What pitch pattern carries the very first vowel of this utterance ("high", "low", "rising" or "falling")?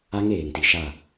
high